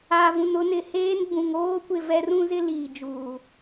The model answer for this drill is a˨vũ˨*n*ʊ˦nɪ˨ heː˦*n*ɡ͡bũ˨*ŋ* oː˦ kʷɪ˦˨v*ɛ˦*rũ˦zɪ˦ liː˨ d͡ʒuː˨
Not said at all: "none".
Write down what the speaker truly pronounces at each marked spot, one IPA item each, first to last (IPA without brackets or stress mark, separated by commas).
n, n, ŋ, ɛ˦